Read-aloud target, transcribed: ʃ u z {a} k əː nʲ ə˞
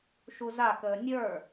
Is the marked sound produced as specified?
yes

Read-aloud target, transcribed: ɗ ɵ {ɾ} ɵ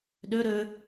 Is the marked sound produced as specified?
yes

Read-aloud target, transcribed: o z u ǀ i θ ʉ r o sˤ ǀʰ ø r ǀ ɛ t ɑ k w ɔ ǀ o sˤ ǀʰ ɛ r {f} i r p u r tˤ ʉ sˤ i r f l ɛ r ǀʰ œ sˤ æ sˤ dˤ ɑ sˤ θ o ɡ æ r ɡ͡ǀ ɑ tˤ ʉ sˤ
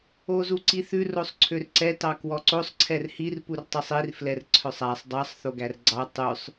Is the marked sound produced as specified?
no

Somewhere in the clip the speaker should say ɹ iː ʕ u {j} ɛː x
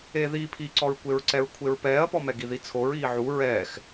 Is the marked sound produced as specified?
no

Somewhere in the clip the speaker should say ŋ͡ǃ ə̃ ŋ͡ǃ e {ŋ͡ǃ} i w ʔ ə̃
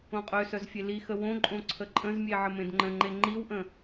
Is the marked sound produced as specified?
yes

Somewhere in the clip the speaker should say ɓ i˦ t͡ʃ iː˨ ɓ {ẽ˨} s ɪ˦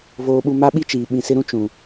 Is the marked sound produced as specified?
no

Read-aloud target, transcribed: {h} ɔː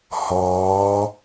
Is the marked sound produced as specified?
yes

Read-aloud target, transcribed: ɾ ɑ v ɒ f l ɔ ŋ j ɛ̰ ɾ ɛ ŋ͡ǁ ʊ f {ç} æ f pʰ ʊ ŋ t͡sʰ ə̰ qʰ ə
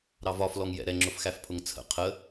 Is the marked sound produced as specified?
no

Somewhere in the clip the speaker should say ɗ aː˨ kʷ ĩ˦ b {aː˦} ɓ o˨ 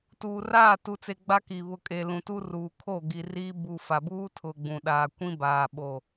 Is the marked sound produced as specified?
no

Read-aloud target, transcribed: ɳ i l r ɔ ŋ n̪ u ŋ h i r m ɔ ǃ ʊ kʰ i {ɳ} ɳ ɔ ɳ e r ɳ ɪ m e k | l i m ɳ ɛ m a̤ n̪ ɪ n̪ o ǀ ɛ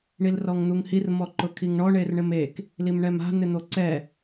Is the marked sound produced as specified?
no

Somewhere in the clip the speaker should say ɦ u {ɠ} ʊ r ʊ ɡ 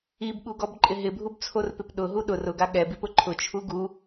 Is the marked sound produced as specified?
no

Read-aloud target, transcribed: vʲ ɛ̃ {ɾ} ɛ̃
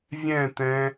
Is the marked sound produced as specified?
no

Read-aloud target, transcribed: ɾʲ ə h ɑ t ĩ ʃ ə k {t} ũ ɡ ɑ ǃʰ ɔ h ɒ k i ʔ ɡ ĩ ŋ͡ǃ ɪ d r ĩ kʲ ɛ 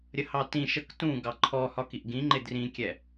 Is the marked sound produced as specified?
yes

